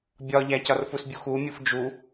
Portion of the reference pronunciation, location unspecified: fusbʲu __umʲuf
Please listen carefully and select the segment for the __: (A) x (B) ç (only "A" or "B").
A